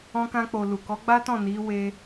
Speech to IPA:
ɔ̃˧ k ã˧ k͡p o˨ l u˨ k ɔ˨˦ ɡ͡b a˦ t ɔ̃˦˨ n i˨˦ w e˧

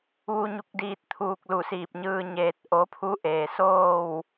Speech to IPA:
ʋ u˧ ɲ u˧ k̚ d iː˧ t̚ t̪ʰ uː˧ k̚ l u˧˩ s iː˧˩ p̚ ɲ ɯː˧ ɲ eː˧ t̚ ʔ o˧˥ pʰ u˧˥ ʔ eː˩ s oː˥˨ w

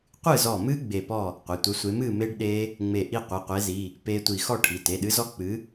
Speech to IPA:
qʷ ɨ˥˨ z ɔ˧˩ m ɨ˦˥ ɡ͡b e˧˩ p ɔ˥˨ | qʷ e˩˧˩ tʷ œ˨˥ sʷ e˨˥ m ɨ˥˨ m e˦˥ ɖ ɗ e˦˥ | ŋ͡m e˧˩ ʔ i˥˨ qʷ ɨ˩˧˩ qʷ e˨˥ z i˩˧˩ | p e˦˥ tʷ i˧˩ x ɔ˥˨ ʈʰ i˩˧˩ t e˩˧˩ ɗ ɨ˨˥ z ɔ˦˥ k͡p ɨ˨˥

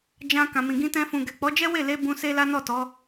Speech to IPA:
d͡ʒ ã˧ k ã˨ m ĩ˨ ɡ ĩ˧ t ɛ̃˧ f ũ˨ ɡ ɛ˨ k͡p ɔ˨˦ d͡ʒ ɛ˦ w e˦˨ l e˧ b ũ˧ s e˦ l a˦ n ɔ˦˨ t ɔ˨˦

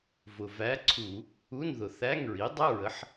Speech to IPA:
v ʊ˨˩ v æ˧˥ ǀʰ u˧˩˧ | u˧˥˧ n ð ʊ˨˩ θ æ˧˥˧ ŋ ɹ i˩˥ dˤ ə˧˥˧ ɹ ə˩˥ ħ

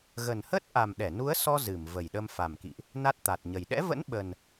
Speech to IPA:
ɣ ə˨˩ n h ə˦˥ t̚ ʔ a˨˩ m ɗ ɛ˧˩ n u˨˦ ə̯ s ɔ˧ z ɨ˧˩ m v ə˨˩ j ɗ ə˧ m f a˨˩ m k ḭ˧˨ ʔ | n a˦˥ t̚ t̪ a˨˩ t̚ ɲ ə˨˩ j ɗ ɛ̰˧˥ v ə̰˧˥ n ɓ ə˨˩ n

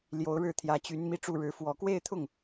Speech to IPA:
l j o˧˥ ʊ̯ ɻ ɻ̩˥˩ t̪ʰ j ä˧˥ t͡ɕ y˧˥ n m i˥˧ ʈ͡ʂ u˥˩ ɻ ɻ̩˧˥ f w ɔ˨˩ k w e˥˧ ɪ̯ t̪ʰ ʊ˥˩ ŋ

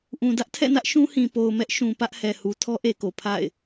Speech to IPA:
ʔ ũ˨ d ä˦ ʔ tʰ ɛ̰˦˨ n ä˦ ʔ ʃ ũ˦ h ĩ˨ p o˨ ʊ̯ m ɛ˦ ʔ ʃ ũ˨ p ä˦ ʔ h ɛ˨ h u˨ tʰ ɔ˦ ʔ e˨ k o˨ pʰ a̰˦˨ ɪ̯

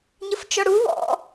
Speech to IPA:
ɲ ə f t͡ʃ ɔ ɽ u w ɔ̰

